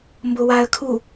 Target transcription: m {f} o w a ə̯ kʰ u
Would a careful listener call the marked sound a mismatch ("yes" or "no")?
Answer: yes